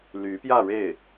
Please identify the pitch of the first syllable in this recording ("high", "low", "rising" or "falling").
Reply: rising